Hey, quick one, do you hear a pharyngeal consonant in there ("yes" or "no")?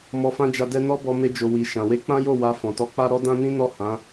no